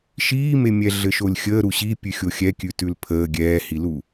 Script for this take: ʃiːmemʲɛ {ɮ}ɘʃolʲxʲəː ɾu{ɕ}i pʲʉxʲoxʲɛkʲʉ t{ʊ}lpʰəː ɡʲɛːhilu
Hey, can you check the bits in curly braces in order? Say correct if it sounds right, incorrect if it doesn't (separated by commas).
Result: correct, correct, incorrect